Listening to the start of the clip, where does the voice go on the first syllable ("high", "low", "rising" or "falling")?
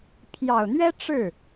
low